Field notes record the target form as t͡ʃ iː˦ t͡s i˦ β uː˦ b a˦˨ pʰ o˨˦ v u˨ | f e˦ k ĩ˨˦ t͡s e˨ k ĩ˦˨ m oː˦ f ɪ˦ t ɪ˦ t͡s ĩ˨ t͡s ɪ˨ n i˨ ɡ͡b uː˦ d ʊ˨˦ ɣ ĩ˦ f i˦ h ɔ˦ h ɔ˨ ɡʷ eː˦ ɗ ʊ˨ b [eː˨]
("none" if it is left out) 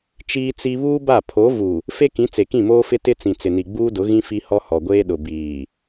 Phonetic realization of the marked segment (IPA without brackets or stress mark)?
iː˨